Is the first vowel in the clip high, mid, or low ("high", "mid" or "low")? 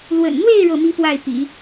mid